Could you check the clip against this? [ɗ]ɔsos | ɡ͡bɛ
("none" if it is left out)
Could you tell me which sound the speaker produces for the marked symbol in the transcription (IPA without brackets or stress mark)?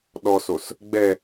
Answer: ɗ